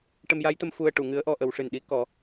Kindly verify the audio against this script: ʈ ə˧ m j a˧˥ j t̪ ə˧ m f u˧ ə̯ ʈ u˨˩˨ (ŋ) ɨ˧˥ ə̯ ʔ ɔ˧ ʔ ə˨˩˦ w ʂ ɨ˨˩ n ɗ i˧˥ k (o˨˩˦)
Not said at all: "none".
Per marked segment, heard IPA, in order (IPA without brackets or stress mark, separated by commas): ŋ, ɔ˨˩˦